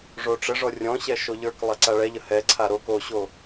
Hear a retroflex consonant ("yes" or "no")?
yes